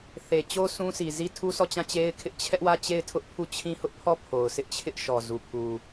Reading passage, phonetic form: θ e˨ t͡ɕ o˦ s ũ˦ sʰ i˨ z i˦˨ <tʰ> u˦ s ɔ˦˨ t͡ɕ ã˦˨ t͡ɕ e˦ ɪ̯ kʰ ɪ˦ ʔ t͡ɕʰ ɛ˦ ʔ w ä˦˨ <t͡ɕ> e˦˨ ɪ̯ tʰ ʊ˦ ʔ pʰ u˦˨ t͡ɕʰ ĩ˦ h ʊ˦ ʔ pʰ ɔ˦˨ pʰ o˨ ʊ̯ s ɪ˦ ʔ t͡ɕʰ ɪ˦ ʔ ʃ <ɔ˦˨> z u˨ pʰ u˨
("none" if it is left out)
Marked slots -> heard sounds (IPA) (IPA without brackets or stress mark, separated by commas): tʰ, t͡ɕ, ɔ˨